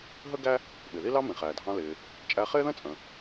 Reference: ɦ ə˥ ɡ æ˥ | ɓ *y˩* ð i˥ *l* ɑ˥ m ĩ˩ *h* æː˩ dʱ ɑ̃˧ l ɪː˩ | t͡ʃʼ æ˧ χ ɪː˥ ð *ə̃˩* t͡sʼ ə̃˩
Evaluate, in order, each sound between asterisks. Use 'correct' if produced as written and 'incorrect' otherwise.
incorrect: ɪ˩, correct, incorrect: χ, incorrect: ə̃˥

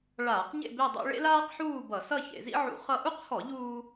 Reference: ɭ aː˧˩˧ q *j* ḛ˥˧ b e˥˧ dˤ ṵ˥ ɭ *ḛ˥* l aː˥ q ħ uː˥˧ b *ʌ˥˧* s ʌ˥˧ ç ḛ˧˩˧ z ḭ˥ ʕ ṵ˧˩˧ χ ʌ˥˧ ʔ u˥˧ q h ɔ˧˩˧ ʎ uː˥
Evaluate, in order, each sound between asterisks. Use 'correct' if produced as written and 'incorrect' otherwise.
incorrect: ɲ, correct, incorrect: ʌ˧˩˧

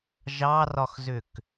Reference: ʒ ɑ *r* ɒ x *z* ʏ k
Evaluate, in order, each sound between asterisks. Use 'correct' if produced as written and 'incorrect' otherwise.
correct, correct

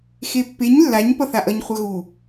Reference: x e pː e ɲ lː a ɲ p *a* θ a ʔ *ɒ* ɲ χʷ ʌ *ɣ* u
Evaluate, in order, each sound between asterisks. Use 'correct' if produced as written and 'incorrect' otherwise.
incorrect: ʌ, incorrect: ʌ, correct

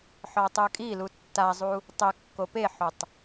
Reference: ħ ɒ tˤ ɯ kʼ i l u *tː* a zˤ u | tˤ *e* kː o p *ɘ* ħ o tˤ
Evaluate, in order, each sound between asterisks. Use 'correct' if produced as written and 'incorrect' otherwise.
correct, incorrect: ɘ, incorrect: e

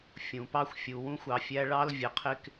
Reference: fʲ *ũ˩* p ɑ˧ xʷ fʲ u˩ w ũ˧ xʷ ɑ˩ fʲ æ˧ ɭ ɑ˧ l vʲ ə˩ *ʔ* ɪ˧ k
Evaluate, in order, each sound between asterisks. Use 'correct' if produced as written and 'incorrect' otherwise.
correct, incorrect: qʰ

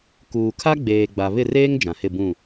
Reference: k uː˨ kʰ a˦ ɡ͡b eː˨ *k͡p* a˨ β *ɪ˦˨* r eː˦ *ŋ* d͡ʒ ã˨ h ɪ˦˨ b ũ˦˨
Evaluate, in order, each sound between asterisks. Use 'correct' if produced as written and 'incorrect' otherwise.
incorrect: ɡ͡b, correct, correct

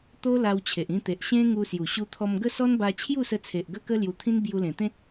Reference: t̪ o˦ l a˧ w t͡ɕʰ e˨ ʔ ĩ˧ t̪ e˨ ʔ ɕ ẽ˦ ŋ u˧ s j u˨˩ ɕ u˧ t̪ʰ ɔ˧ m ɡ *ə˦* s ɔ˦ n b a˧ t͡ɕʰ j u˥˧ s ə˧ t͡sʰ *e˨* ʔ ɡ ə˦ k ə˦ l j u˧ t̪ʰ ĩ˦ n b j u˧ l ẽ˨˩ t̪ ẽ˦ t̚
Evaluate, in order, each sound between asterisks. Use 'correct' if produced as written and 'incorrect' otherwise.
correct, correct

